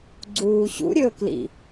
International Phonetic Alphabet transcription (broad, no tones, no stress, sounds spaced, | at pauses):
ɡ͡ǀ uː ɕ ṵ ɾʲ ɵː k l ḭ